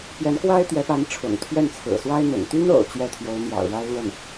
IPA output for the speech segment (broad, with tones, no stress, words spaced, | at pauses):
pjɛ˧˥nkwa˥ɪ̯t̪ɥɛ˧˥pa˧˥n ʈ͡ʂʰʊ̰˨˩ŋt̪ʰɥɛ˥˩nt͡sʰɹ̩˨˩ swa˥ɪ̯n̪ʊ̰˨˩ŋ t̪y˥no̰˨˩ʊ̯ t͡ɕɥɛ˥˩t̪ʰjo˧˥ʊ̯n̪jɑ̰˨˩ʊ̯ɻa˥ɪ̯ lwə˥˩n